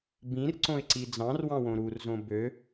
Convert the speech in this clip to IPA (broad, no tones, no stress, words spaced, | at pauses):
bĩrǀõɪ̯ǀi d͡zɑ̃rwɑ̃wõ ɾurzõ bø